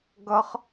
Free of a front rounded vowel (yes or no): yes